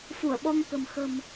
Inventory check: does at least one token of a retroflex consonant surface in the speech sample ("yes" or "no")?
no